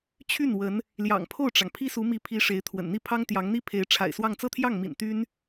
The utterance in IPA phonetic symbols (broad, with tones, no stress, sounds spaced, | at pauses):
t͡ɕʰ y˥˩ n w ə˧˥ n | l j ɑ̰˨˩ ŋ pʰ o˥˩ ʊ̯ ʈ͡ʂ ɑ˩ ŋ pʰ i˥ s u˧˥ m i˧˥ pʰ i˧˥ ʂ e˧˥ ɪ̯ t̪ʰ w ə̰˨˩ n n̪ i˥˩ pʰ ɑ˥ ŋ t̪ j ɑ˧˥ ŋ n̪ i˥ pʰ e˧˥ ɪ̯ ʈ͡ʂʰ a̰˨˩ ɪ̯ s w ɑ˥˧ ŋ t͡s ɤ˥˧ t̪ʰ j ɑ˥˩ ŋ m ḭ˨˩ n t̪ y˥ n